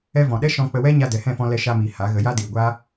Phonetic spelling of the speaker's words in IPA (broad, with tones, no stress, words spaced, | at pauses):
ɛ˧vɔ̃˨ɗɛ˦ ʃɔ̃˧k͡pə˧wɛ˦ ɲa˧dɛ˨hɛ̃˦˨fɔ̃˧ lɛ˧ʃa˧miː˨ ha˨˦ɣə˧ ja˦diː˨ ɡʷaː˦